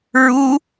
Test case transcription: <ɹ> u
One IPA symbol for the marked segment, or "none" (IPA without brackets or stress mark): ɹ